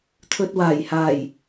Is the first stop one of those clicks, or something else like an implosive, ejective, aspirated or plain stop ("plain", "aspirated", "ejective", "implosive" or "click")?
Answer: aspirated